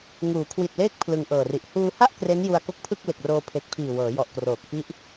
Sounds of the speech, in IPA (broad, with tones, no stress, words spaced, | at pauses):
ŋuː˩˦kʰwi˨˩t̚leː˦˥k̚ pʰlɯ˧ŋʔɤː˨˩ri˨˩ʔ huː˧ha˥˩ʔ kre˦˥nju˧a̯ ko˦˥k̚pʰɯ˥˩k̚le˨˩k̚roː˧ pʰe˨˩k̚pʰiː˨˩wɤː˩˦ jɔ˨˩ʔkroː˨˩k̚ fi˦˥ʔ